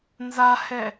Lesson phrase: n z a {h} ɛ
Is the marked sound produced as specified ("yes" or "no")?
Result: yes